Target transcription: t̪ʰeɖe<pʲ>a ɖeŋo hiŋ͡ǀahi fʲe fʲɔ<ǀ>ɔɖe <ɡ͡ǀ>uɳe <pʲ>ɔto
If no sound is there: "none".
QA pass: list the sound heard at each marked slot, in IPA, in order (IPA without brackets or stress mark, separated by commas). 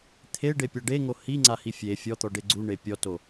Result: pʲ, t̪, ɡ͡ǀ, pʲ